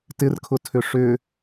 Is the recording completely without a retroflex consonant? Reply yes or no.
no